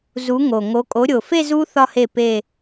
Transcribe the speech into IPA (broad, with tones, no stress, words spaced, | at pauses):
zu˨˦ŋo˨˩ŋo˨˦ kʼo˨˦ɾʲo˨˩fe˥˧ zu˦˥ θɒ˥˧he˥˩ pe˥˧